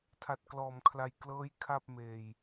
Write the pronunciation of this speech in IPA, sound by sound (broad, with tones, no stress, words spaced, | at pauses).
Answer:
tʰa˨˩t̚klɔː˩˦mkʰla˨˩j klɤː˦˥j kʰa˥˩p̚meː˧j